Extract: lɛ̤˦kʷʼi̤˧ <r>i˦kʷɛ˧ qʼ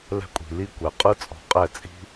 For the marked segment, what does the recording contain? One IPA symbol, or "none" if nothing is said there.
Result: l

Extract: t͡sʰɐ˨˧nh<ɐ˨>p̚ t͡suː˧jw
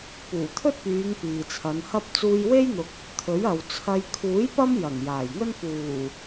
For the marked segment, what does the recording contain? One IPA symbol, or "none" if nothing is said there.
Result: ɐ˥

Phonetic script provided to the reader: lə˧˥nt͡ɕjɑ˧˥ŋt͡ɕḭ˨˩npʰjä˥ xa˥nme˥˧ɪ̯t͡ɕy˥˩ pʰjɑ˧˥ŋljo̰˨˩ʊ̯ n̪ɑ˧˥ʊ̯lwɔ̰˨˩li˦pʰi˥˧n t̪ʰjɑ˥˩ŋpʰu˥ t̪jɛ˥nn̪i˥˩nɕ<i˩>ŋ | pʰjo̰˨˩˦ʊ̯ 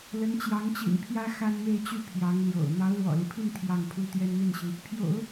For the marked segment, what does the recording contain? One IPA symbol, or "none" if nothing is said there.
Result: i˩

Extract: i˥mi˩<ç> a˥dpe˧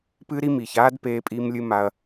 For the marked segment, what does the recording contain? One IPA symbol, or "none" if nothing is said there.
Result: ç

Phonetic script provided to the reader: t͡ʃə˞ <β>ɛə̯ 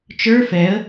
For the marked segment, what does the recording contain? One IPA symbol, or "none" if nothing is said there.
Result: f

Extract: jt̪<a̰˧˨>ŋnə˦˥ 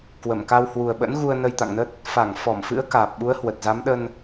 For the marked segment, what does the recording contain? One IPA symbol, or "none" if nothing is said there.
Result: a̰˧˨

